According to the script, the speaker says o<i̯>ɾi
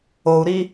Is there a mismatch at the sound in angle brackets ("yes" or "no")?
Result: yes